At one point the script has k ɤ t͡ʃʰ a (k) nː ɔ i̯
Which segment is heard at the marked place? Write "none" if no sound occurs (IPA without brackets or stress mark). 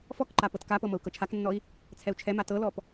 k